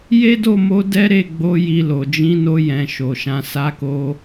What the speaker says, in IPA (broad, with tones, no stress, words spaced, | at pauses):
je˦do˦˨mo˧ dɛ˦ ɾe˦˨ ɡ͡bo˧ ji˧lo˨ d͡ʒĩ˨˦no˧jɛ̃˨ ʃo˨ʃã˧ sa˧ko˧